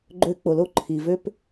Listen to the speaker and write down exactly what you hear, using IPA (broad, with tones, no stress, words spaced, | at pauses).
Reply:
ɡ͡ǃø˦ k͡po˨lo˦ ǃʰi˨vø˦p